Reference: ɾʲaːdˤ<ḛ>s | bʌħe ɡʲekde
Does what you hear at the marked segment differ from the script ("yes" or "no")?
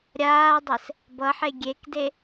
yes